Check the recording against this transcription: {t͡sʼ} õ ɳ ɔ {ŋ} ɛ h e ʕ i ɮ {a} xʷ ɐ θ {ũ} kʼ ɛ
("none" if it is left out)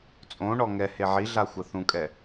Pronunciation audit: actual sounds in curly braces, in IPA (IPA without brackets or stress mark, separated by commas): t͡sʼ, ŋ, a, ũ